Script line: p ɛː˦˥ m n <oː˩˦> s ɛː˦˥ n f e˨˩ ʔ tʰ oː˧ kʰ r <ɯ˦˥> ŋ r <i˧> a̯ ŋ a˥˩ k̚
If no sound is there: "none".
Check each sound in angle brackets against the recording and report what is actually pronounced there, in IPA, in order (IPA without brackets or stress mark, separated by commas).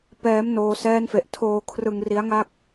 oː˧, ɯ˧, i˦˥